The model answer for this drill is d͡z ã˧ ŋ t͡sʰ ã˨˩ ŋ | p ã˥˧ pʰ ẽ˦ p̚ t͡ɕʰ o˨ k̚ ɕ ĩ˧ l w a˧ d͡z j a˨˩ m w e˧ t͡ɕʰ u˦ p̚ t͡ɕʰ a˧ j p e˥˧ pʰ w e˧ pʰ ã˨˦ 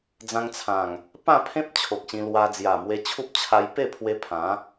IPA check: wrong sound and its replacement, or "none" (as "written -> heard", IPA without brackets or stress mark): none